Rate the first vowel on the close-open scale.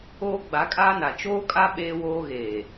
mid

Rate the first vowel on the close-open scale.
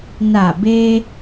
open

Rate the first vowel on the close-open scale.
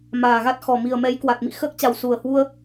open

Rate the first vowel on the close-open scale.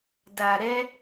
open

